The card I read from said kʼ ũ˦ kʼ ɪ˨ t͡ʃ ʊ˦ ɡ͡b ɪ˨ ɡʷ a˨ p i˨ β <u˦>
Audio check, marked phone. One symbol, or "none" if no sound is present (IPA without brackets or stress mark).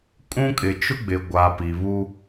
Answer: u˦